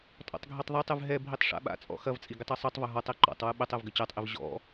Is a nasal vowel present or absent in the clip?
absent